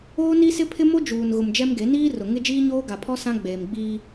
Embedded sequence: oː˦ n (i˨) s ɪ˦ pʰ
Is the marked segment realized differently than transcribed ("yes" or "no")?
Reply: yes